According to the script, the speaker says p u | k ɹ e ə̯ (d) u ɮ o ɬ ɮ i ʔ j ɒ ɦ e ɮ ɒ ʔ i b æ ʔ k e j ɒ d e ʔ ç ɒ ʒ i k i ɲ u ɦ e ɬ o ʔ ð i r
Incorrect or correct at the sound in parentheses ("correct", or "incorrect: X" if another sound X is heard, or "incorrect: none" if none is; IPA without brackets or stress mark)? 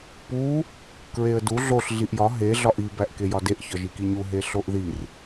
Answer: correct